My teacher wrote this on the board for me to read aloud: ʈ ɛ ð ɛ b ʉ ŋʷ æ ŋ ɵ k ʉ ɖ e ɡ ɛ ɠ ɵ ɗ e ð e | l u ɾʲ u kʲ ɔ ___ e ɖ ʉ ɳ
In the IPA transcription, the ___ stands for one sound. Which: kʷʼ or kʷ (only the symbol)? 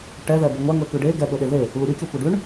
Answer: kʷ